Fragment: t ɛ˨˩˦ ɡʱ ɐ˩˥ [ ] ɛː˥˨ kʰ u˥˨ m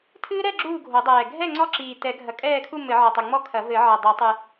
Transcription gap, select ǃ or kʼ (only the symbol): kʼ